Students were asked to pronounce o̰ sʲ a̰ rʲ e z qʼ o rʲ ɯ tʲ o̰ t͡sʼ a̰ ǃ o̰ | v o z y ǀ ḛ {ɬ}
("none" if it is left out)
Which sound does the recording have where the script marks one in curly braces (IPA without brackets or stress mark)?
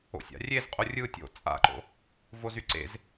z